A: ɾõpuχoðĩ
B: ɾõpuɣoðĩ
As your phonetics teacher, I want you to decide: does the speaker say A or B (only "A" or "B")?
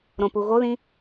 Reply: B